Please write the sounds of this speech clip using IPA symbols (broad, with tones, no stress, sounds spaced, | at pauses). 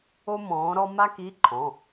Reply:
o˥ m ɔ̃ː˨˥ ɾ ɔ˥ m a˥ k i˧˥˧ ǃʰ ɔ̃˩˧˩